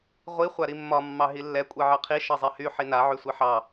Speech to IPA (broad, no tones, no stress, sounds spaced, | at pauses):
ʁʷ i χʷ a ɾ i mː ɒ mː ɑ ɦ i lː ɛ kʷʼ ɛ ʕ ɑ qʰ i ʃ ɑ zˤ ɛ h y ħ i n a ʕ y sʷ i ħ ɑ